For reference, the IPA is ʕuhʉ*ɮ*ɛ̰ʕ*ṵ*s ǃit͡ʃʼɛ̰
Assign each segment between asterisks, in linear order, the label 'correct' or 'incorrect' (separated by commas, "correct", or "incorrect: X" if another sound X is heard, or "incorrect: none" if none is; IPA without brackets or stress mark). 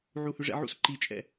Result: incorrect: ʐ, correct